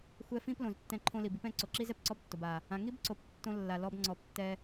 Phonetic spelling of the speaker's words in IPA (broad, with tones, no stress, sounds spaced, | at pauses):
xʷ ɛ˧ f ĩ˦ p l õ˨ z tː ɛ̃˧ ǃʰ õ˧ l i˨ b i˧ p ɛ̃˦˨ ǀ o˨ ǁ i˦ z ɛ˨ p ǀ ɔ˦ b tː o˨ b a˨ | ã˨ ŋ i˦ b ǀ o˨ p tː õ˧ lː a˨ l ɔ˧ b ŋ͡ǀ ɔ˨˦ p tː ɛ˧